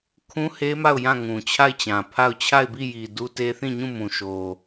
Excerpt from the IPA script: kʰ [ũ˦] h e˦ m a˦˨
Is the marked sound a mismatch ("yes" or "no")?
no